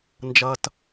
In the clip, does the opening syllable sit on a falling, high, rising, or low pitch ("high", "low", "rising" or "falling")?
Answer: high